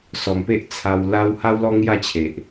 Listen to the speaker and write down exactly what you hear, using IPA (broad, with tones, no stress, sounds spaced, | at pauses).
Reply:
s ɔ˨˩ m p e˦ ʔ t͡sʰ a˧ w l a˦ w h a˦ w l ɔ˦ ŋ j a˥˧ t͡ɕʰ e˨ ʔ